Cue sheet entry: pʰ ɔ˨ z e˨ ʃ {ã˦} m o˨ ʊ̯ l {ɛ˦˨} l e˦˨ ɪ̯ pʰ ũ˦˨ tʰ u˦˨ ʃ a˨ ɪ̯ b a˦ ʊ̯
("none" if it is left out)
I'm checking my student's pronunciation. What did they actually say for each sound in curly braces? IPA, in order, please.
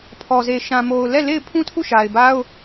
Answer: ã˨, ɛ˦˨

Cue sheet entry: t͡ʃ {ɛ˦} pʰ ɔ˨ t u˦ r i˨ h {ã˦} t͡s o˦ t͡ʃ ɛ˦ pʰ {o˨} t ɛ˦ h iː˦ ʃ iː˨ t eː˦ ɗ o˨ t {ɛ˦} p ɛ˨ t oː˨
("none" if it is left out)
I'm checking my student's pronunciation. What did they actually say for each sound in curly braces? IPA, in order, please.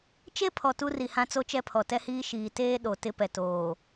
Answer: e˦, ã˦, ɔ˨, ɪ˦

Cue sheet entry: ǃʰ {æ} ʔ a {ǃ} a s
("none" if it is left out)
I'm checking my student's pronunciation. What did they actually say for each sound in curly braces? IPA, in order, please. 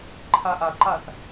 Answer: a, ǃ

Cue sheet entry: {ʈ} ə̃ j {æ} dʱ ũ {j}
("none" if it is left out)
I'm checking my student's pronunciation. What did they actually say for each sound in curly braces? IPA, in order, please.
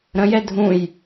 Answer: ɾ, ɛ, j

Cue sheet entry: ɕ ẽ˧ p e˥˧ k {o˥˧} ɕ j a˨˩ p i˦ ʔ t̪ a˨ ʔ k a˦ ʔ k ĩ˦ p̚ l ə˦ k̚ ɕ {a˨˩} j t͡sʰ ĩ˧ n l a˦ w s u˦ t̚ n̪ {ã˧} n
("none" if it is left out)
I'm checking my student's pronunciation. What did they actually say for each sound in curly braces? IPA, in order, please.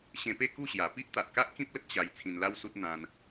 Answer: u˥˧, a˧, ã˧

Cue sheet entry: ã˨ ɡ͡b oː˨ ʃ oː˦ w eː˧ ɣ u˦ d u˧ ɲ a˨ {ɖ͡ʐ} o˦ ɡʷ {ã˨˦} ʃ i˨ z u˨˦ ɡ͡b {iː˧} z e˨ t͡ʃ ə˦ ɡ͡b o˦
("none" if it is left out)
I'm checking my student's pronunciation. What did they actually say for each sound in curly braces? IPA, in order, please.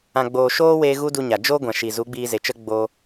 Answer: d͡ʒ, ã˨, iː˧

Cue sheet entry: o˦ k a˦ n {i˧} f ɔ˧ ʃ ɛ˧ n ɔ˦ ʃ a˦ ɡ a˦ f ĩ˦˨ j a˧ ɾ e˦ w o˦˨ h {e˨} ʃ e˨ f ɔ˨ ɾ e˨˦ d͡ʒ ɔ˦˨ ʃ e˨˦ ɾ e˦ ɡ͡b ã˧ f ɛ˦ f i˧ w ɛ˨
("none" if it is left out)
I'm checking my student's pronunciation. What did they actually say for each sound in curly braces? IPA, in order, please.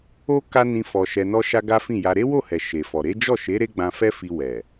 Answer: ĩ˧, ɛ˨

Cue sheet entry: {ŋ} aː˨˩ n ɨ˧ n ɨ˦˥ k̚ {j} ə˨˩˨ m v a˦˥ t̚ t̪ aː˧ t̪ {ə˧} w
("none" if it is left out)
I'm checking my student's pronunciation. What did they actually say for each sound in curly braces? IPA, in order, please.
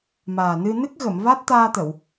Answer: m, ɣ, ə˨˩˨

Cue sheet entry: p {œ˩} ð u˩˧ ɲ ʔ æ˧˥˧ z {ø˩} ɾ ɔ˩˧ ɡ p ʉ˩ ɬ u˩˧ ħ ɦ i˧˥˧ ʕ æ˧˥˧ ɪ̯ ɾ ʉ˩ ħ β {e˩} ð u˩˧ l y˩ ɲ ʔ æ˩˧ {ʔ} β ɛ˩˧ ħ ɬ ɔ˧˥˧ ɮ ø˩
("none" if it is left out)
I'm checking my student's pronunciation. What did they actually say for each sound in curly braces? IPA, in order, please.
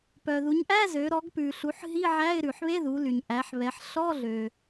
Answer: œ˩, ø˩˧, e˧˥˧, ħ

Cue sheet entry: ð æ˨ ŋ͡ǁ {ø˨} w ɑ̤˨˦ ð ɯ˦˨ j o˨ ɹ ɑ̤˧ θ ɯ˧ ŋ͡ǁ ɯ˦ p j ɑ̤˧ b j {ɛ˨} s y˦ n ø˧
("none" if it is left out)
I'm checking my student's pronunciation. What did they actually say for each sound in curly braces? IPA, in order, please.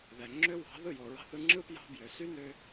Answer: ø˦, ø˨

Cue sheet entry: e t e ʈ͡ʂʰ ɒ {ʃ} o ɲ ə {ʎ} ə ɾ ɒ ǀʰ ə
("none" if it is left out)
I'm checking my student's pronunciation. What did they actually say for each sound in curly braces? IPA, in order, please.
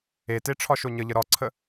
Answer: ʃ, ʎ

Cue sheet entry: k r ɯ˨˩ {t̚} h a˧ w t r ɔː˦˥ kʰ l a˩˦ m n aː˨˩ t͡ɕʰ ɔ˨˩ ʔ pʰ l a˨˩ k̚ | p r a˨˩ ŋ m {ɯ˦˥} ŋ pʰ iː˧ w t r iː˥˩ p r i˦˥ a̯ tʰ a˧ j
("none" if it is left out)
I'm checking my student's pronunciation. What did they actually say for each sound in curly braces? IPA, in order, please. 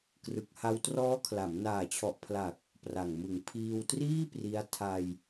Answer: k̚, ɯ˨˩

